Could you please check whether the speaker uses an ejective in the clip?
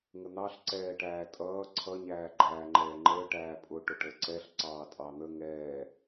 yes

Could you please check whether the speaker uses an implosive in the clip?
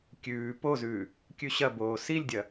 no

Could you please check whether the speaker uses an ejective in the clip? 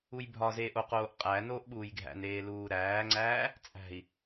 yes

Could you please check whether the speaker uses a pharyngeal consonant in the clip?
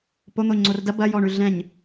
no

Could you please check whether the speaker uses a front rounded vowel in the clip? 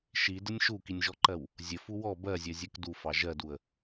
no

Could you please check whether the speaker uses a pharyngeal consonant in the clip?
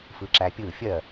no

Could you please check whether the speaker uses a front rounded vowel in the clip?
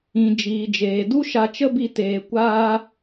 no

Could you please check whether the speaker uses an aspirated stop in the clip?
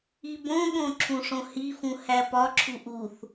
yes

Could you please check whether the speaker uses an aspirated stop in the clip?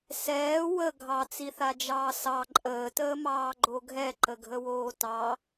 no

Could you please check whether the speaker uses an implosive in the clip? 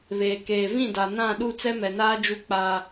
yes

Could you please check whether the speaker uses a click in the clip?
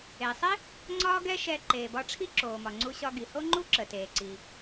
yes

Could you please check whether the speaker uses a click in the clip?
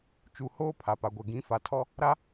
no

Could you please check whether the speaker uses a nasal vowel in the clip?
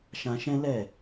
yes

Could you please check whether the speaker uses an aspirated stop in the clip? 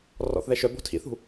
yes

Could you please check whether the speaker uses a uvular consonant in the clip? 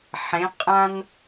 yes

